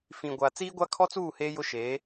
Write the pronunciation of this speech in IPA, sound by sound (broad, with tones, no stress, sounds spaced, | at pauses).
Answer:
f ĩ˨ ɡʷ a˨ t͡s iː˦ ɡʷ a˦ kʰ ɔ˦ t͡s uː˦˨ h eː˦ j ʊ˦ ʃ eː˨˦